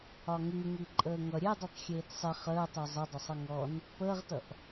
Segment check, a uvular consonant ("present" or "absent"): present